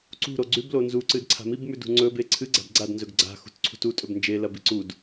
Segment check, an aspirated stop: present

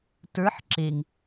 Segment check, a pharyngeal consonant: present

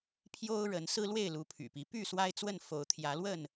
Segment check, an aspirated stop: present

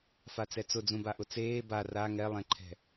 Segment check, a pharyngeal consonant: absent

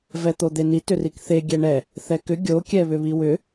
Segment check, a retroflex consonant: present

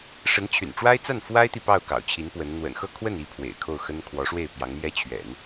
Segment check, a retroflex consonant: present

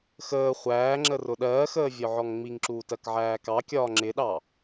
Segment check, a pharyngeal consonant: present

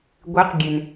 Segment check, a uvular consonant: present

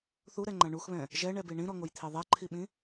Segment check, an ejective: absent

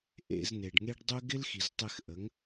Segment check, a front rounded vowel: present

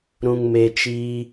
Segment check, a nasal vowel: present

